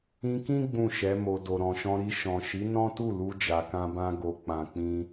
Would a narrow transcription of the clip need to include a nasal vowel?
yes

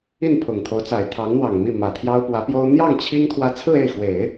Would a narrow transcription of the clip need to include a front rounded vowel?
no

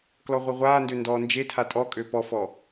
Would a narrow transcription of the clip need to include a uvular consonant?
yes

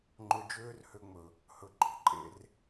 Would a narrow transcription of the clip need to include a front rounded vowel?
yes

